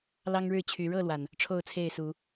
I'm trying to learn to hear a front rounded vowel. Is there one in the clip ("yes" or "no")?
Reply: yes